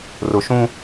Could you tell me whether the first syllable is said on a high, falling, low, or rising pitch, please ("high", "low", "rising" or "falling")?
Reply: low